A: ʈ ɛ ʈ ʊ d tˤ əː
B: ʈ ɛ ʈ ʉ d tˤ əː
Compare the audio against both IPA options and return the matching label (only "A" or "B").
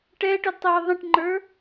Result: A